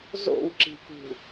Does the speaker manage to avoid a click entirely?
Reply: no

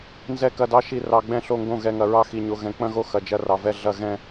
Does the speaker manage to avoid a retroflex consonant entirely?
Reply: yes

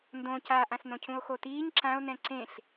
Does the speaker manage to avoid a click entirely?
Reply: no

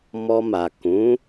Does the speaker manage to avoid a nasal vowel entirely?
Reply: no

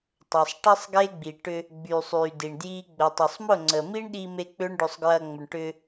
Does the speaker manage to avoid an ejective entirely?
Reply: yes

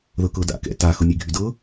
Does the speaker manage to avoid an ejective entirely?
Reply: yes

